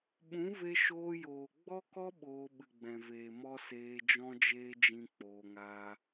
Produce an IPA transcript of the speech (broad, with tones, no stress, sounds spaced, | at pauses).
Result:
ɓ ũ˨˦ v e˧ ʃ oː˧ j oː˨ ɡ͡b ɔ˦ k ɔ˦ ɓ oː˧ ɓ ɨ˨ ɡ͡b ɛ̃˨ v eː˨ m ɔ˦ s eː˧ d͡ʒ ɔ̃˦ d͡ʒ eː˦ d͡ʒ ĩ˦ k͡p oː˧ ŋ aː˦